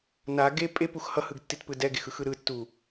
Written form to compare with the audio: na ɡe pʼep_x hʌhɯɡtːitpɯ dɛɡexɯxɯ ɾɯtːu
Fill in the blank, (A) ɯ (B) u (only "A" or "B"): B